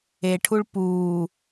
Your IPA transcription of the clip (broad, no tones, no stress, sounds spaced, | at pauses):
e ʈʰ u ɭ p uː